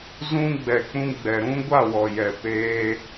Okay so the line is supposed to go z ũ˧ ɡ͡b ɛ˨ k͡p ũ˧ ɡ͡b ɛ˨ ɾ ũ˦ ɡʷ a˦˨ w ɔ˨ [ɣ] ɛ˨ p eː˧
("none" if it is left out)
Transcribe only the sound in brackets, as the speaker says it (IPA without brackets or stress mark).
j